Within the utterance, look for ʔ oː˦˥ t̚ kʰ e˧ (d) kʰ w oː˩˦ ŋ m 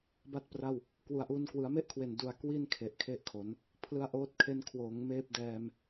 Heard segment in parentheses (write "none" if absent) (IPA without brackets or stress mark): n